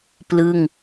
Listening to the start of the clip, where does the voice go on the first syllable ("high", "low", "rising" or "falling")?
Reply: falling